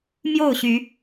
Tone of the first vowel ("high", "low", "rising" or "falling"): falling